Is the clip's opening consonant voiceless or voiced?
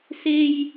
voiceless